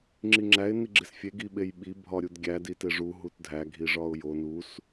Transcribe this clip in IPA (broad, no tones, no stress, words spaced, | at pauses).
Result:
ŋ͡ǁiŋ͡ǁæɪ̯ niɡ͡ǁesfʲe ɡiɓejɓi bʱɒɾʲudɡʲæ diteʐu ɦutdʱæ ɡʱiʐɒʊ̯jo nus